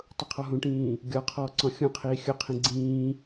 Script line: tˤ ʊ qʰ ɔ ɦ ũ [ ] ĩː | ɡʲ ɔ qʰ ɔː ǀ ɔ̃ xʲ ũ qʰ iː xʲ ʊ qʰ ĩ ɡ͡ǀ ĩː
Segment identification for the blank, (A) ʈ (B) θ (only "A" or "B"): A